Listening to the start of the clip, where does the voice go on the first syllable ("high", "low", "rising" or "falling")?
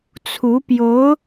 rising